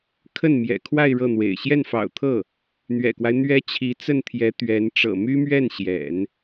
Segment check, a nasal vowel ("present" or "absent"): absent